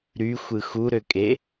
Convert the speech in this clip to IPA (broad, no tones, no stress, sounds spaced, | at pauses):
ɾ y xʷ ɯ x u ɾ ø kʼ e